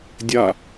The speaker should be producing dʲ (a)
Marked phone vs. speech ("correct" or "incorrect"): correct